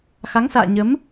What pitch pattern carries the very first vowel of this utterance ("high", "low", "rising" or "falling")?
rising